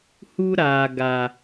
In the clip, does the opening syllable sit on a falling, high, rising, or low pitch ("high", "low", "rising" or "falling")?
high